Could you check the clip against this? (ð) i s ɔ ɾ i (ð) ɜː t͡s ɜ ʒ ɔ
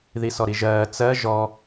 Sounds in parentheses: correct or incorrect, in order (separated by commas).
correct, incorrect